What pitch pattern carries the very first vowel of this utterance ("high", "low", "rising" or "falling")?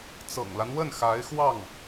low